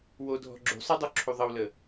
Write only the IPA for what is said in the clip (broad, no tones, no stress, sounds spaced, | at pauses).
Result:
w o dʱ ɔ̤ ɡ͡ǁ ṳ sˤ ə dˤ u ǁʰ u ðˤ ə w l ə